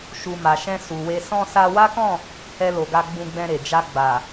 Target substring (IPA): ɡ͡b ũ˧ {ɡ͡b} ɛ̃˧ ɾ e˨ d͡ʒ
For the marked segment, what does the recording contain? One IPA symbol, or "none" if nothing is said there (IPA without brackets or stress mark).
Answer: ɡ͡b